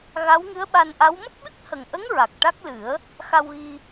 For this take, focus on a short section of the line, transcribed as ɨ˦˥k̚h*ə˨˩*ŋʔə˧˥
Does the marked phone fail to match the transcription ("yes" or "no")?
no